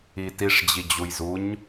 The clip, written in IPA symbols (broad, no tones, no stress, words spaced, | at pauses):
itiʂ d͡ʑid͡ʑujzuɲ